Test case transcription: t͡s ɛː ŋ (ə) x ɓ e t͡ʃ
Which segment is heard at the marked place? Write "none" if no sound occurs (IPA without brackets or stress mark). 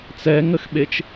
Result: ə